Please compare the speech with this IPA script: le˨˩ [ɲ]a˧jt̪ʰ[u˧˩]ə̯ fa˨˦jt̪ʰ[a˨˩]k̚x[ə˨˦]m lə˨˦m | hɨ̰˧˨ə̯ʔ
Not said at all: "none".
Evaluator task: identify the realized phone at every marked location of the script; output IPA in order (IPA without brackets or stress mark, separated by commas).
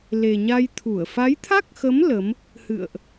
ɲ, u˧˩, a˦˥, ə˨˦